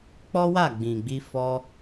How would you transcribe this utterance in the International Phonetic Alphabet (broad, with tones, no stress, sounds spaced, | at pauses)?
k͡p ɔ˦ w a˦˨ ɡ͡b ĩ˨ ɡ͡b i˧ f ɔ˧